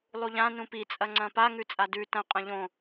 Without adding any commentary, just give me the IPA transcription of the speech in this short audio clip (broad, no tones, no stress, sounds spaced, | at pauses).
lˠ u ʎ ã n ũ p i t͡sʼ ɐ ŋ͡ǀ ɐ̃ p a ŋ ʉ t͡sʼ a d ʉ t ɐ̃ qʼ ɐ̃ ʎ õ